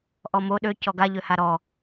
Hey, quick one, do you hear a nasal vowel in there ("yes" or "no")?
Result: no